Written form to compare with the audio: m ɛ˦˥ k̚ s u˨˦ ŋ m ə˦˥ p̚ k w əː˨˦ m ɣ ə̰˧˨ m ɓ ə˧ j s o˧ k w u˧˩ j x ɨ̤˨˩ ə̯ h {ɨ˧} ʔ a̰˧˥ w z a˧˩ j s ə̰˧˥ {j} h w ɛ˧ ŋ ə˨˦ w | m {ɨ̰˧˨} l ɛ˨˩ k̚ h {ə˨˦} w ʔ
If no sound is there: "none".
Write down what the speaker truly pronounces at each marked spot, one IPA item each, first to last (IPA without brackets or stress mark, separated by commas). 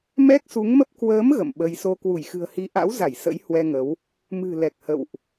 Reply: i˧, j, ɨ̤˨˩, ə̰˧˨